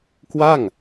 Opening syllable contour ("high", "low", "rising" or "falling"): falling